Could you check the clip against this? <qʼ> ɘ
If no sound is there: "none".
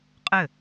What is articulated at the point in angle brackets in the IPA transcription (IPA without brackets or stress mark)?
qʼ